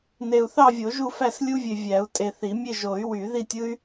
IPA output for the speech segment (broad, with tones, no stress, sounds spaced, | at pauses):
n e˨ u̯ θ ɑ˥˧ vʲ o˨˩˦ ʒ u˥˧ f æ˥˧ s lʲ u˥ vʲ e˨ vʲ æ˨˩˦ u̯ tʼ e˨ θ i˨˩˦ mʲ e˥˧ ʒ o˨˩˦ y̯ w y˨˩˦ ð i˥˧ tʲ ɯ˥ y̯